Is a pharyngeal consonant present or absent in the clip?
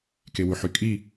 present